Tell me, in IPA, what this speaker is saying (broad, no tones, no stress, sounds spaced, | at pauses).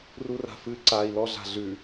r u r a̤ f ɨ ǀ a i̯ l ɔ ɮ a̤ ɮ ʉ